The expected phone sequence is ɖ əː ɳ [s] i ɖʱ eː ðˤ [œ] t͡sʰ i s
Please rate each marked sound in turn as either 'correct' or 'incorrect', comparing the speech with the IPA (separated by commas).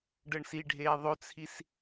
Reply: correct, incorrect